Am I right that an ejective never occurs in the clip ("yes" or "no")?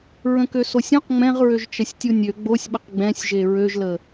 yes